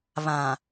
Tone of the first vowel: low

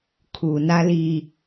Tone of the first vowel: low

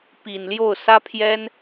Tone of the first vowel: low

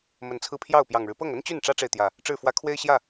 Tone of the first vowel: rising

